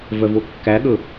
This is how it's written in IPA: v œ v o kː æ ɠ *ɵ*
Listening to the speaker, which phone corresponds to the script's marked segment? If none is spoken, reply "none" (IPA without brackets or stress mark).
ɵ